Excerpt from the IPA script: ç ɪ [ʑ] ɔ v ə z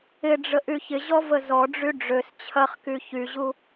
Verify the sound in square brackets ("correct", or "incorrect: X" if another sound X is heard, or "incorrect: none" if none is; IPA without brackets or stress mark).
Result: correct